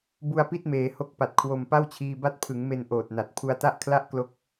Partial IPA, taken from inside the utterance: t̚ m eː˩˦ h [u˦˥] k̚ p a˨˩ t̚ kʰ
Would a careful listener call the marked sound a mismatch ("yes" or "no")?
yes